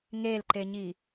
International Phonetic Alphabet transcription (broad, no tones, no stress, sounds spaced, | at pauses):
ŋ e l ǃ e ɲ i